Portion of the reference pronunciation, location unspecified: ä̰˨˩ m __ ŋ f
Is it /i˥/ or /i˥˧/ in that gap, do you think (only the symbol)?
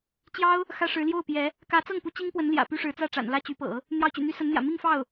i˥˧